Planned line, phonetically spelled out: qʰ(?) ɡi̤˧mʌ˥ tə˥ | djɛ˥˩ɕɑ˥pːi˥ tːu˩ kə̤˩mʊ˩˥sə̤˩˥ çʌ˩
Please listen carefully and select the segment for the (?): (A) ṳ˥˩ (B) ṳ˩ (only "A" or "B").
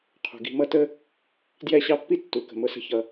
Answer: B